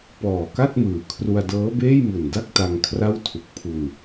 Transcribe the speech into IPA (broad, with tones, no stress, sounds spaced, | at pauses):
p ɔː˨˩ k a˥˩ t̚ m ɯː˨˩ kʰ r u˧ a̯ d ɤː˦˥ b eː˥˩ j m u˨˩ n d a˥˩ k̚ t a˧ ŋ kʰ r a˥˩ w tʰ u˨˩ k̚ pʰ u˧ n